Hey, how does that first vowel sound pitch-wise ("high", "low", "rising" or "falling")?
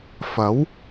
rising